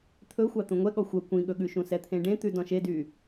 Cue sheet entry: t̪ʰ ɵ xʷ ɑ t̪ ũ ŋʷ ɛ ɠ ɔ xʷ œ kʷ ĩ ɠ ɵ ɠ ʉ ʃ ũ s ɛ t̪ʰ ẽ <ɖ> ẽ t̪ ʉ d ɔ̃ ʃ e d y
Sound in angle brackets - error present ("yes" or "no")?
no